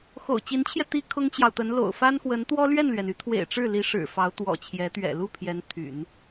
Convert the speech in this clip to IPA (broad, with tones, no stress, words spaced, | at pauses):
xo̰˨˩ʊ̯t͡ɕi˧˥nt͡ɕʰjɛ˧ t̪i˥kʰʊ˥ŋt͡ɕjɑ˨ʊ̯t̪ə˧˥n lo̰˨˩ʊ̯fa˥nxwə˧˥n t̪wɔ˥lɥɛ˥˩nlɥɛ˩n y˧˥t̪ʰwḛ˨˩ɪ̯ ʈ͡ʂɻ̩˥˩li˧˥ ʂɻ̩˨˩fɑ˧˥ʊ̯t̪wɔ̰˨˩ t͡ɕʰjɛ˧˥ t̪ɥɛ̰˨˩lu˥˩ pʰjɛ˧˥nt̪ʰy̰˨˩˦n